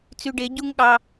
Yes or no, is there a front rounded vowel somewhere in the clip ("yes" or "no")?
yes